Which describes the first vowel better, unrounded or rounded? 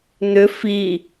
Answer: rounded